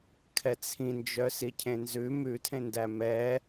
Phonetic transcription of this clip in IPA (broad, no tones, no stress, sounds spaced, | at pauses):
kʰ ɛ t͡sʰ ĩ n d͡ʒ œ s i cʰ ẽ n z ʉ m ʉ tʰ ẽ n d æ m ɛ